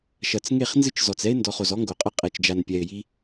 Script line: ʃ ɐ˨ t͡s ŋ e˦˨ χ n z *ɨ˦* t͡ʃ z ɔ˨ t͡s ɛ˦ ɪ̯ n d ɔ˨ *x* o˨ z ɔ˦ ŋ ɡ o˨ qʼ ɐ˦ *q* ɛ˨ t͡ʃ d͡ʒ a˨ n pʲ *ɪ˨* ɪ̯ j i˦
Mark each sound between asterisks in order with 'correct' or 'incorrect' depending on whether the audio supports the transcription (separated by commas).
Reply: correct, incorrect, incorrect, incorrect